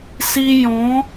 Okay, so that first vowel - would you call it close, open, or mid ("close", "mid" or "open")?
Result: close